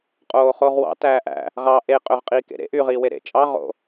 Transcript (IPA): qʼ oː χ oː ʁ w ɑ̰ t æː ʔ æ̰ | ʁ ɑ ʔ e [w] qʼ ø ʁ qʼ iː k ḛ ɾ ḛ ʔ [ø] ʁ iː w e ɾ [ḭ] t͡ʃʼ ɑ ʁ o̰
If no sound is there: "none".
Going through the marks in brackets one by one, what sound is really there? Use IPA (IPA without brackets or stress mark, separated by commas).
none, y, ḛ